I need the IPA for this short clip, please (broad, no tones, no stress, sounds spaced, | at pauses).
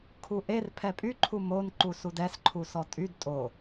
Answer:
kʰ u ʔ e r pʰ ɛ pʼ y ǃʰ u m o n ǃ u s u d ɛ s ǃʰ u s ɔ tʼ y d tʼ o